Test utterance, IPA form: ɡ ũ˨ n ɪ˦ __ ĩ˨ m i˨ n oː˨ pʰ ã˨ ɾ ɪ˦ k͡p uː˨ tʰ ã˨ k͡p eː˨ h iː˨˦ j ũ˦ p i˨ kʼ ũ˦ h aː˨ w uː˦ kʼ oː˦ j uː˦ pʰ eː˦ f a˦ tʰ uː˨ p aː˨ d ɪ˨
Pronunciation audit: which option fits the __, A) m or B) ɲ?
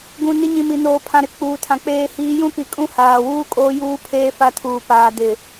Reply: B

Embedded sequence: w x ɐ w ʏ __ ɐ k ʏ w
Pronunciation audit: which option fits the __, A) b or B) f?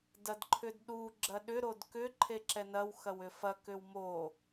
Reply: B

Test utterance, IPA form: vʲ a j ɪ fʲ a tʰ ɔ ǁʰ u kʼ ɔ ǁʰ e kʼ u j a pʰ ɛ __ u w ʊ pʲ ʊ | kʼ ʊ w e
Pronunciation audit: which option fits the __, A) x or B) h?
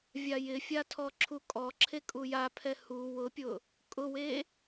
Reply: B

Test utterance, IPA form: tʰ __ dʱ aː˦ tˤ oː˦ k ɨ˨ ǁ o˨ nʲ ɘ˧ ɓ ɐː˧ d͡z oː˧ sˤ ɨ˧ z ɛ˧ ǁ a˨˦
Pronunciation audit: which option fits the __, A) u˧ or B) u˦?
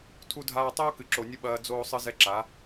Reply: B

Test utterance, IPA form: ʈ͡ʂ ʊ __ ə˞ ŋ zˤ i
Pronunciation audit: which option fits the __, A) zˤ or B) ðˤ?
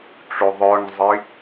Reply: B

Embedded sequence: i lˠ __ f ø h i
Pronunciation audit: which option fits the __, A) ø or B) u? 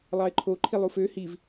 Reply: B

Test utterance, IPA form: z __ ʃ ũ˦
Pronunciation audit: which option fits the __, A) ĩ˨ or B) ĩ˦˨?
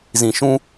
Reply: A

